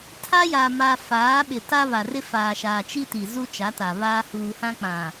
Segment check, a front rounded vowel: absent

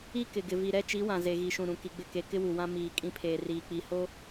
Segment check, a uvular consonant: absent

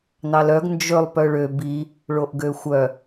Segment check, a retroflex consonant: present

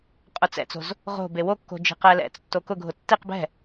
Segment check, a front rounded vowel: absent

